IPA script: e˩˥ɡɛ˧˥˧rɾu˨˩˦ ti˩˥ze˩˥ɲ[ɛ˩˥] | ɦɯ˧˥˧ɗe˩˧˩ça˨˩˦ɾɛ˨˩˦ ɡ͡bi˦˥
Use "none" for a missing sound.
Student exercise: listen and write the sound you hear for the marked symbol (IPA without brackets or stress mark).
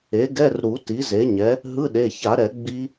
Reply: ɛ˩˥